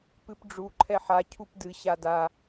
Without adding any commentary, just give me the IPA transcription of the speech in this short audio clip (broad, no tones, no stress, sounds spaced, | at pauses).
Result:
p ɨ p ɖ͡ʐ u ǃʰ ɛ ħ a cʰ u p d ɨ ɕ a d a